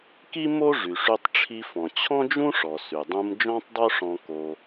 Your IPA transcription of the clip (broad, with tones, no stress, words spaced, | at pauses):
ki˥mo˥ ʐy˩ʂy˧tˤʈ͡ʂʰi˧fɔ̃˩ t͡ɕʰɔ̃˥d͡ʒũ˥ʂɔ˩ sy˩dˤũ˧m d͡ʒɔ̃˥tˤdˤo˥ʂɔ̃˧ ko˧